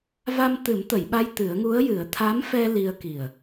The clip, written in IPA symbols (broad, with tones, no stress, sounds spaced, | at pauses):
v a˧ m t̪ ɨ˨˩˦ m t̪ ə˨˩˨ j ɓ a˧ j t̪ ɨ˨˩˦ ə̯ ŋ u˧˥ ə̯ j ɨ˨˩˦ ə̯ t̪ʰ a˧˥ m f ɛ˧ l i˧ ə̯ k i˨˩ ə̯